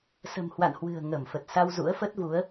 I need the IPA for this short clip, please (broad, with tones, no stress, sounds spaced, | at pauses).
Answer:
s ə̤˨˩ m h w a̰˧˨ n h w ɨ̤˨˩ ə̯ ŋ ə˧˩ m f ə˨˩ t̚ s a˧ w z ṵ˧˥ ə̯ f ə˦˥ t̚ v u˨˦ ə̯